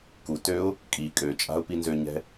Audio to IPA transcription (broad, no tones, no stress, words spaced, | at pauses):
kutøʊ̯ | kʼi kʼøt͡ʃʼa̤ʊ̯pi nzøɲɛ̤